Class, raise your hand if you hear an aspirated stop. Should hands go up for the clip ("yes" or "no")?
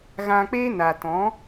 no